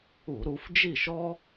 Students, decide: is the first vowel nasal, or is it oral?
oral